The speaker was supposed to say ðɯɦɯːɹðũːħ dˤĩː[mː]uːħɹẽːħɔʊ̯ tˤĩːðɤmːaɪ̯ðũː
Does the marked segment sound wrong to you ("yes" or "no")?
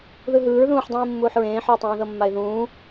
no